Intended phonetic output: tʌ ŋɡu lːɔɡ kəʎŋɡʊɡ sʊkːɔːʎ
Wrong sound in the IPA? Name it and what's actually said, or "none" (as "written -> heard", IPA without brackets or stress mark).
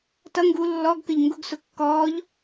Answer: none